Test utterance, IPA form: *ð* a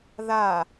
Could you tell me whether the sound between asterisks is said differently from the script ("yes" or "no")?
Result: no